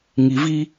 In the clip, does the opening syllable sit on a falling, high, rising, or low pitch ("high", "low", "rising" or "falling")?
low